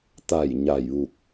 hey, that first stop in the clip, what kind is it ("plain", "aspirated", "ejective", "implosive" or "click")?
plain